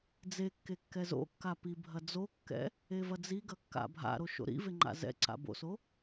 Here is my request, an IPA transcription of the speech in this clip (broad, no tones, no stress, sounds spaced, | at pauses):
d͡z e kː e kː ɛ z o̰ kː a p i bʱ ɐ d͡z o kː ɛ̰ | e v ɐ d͡z i ɡ ɐ kː a̰ bʱ a̰ ɾ o ʃ o̰ ɾ ḭ v e ŋ͡ǃ a̰ z ɛ̰ ǀ a̰ b o̰ s o